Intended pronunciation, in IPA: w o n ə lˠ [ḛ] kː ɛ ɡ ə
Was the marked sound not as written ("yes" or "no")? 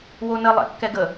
no